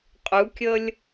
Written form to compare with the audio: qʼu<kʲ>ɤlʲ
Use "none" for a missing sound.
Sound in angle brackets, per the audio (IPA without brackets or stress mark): kʲ